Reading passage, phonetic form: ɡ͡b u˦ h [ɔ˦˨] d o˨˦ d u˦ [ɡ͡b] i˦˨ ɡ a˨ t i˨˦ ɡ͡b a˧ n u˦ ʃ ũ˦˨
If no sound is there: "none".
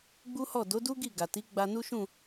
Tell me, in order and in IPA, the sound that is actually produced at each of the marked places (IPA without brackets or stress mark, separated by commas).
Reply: ɔ˦˨, ɡ